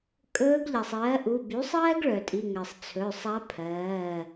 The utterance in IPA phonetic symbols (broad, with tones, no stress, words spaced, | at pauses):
kʼɵː˧˥ɡʎa˩sˤɜː˩˥ʔu˩˧˩ by˩˥sˤɜː˥ɡ ɭœ˩tʼi˩˧˩ŋɜ˩sˤ t͡sʰɵ˩˧˩sˤa˧˥pʰɜː˩˧˩